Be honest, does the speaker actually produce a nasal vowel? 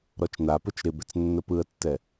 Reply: no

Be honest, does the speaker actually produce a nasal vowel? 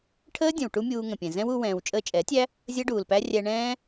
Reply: yes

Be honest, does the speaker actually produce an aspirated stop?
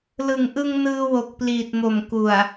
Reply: no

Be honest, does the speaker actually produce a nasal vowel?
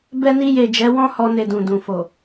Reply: yes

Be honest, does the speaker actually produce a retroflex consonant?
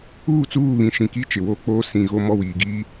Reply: no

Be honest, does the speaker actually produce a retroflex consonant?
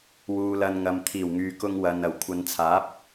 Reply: no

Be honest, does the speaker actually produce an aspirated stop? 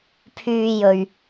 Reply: yes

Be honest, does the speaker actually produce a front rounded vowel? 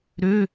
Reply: yes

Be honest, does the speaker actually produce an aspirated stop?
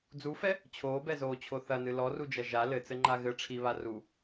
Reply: yes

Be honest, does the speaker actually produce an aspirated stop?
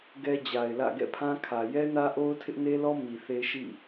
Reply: yes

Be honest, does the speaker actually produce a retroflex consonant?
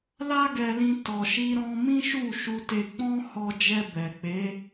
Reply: no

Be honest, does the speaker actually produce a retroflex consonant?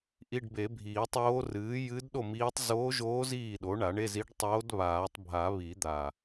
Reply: yes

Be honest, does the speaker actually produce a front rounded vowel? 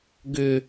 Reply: yes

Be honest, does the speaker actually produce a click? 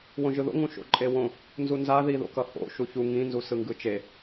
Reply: yes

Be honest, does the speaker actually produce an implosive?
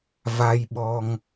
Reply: yes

